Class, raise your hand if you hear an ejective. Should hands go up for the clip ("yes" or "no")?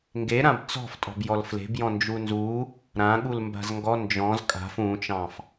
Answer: yes